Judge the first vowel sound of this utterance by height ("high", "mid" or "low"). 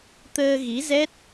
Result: mid